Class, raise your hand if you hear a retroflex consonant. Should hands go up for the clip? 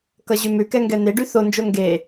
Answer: yes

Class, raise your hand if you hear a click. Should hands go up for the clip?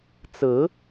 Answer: no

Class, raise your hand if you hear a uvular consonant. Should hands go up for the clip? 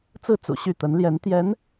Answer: no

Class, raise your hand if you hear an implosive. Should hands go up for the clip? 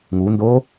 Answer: no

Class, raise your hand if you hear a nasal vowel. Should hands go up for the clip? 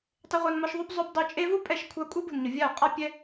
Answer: no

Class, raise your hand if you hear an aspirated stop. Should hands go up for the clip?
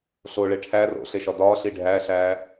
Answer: yes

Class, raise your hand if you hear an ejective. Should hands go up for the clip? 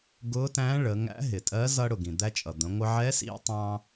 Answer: yes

